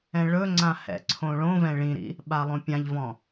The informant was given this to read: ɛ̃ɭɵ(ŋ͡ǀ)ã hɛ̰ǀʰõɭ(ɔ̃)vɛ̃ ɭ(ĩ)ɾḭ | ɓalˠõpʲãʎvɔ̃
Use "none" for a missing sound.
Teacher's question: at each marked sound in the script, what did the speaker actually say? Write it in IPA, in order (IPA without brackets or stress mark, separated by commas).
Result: ŋ͡ǀ, õ, ĩ